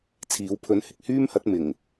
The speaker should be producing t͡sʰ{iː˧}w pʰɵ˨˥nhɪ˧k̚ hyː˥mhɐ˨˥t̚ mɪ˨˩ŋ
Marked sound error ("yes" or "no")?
yes